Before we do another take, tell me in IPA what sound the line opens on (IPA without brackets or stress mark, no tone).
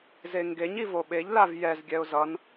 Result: z